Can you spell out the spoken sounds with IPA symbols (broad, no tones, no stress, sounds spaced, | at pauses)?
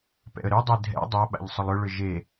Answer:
p ɛ̰ ə̯ ɾ ʏ dˤ e dʱ ɛ̰ dˤ a ɓ a̰ ʎ sˤ ʊ lˠ ʏ ɭ ʏ ʒ e